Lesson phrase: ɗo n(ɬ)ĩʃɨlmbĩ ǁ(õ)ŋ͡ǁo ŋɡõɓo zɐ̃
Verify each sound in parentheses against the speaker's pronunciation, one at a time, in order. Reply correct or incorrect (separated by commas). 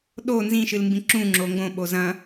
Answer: incorrect, incorrect